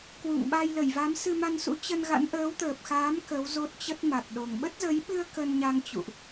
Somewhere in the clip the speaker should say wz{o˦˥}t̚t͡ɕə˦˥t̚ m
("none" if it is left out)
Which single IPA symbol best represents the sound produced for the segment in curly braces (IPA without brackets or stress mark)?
o˦˥